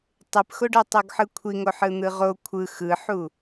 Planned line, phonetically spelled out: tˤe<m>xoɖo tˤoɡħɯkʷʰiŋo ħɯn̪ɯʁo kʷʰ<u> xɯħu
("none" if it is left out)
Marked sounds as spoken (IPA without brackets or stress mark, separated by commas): p, ɯ